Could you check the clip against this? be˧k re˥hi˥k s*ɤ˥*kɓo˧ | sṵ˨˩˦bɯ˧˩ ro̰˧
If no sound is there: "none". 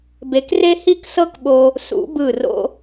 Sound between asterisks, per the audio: ɤ˥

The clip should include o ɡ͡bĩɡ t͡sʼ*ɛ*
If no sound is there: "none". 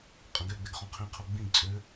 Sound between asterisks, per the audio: ø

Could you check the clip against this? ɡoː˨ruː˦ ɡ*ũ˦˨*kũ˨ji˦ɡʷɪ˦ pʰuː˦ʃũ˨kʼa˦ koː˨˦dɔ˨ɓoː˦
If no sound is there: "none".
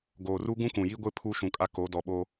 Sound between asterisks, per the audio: ũ˦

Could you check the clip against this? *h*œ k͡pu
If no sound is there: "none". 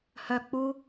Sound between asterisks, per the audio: h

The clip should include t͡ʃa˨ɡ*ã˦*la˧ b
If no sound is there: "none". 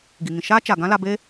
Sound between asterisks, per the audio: ã˦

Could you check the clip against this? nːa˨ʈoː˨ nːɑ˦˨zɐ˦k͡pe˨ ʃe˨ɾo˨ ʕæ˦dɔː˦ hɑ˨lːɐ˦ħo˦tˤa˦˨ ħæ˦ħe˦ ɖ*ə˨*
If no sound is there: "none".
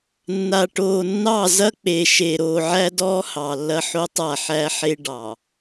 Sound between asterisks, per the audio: ɑ˨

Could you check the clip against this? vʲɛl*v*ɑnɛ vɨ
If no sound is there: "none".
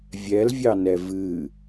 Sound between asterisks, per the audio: vʲ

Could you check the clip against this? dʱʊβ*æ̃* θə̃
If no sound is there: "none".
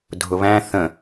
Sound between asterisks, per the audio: æ̃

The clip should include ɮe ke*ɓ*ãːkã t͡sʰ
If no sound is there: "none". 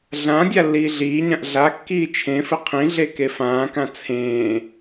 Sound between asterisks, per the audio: f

